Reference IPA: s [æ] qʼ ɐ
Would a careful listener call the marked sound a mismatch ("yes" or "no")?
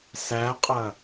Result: no